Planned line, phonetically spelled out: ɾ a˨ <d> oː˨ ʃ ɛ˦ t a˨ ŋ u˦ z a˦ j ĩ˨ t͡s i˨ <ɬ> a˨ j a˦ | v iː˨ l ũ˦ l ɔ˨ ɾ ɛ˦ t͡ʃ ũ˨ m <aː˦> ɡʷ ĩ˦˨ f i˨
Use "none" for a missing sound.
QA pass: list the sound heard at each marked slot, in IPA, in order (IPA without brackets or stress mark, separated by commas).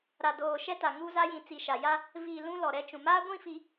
d, ʃ, aː˦